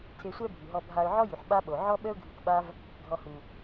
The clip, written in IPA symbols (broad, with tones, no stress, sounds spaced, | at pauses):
tʰ e˧ sʷ ɛ˥ bʱ y˩ ɦ ɔ˧ bʱ a˧ ʊ̯ ʕ ɔ˥ j y˩ ħ ɓ a˥ ɓ o˩ ʕ ɔ˥ ɓ ə˥ ʊ̯ ɡʱ y˧ k ɓ a˥ v | ɡʱ ɔ˧ h u˩